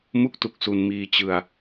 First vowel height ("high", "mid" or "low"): high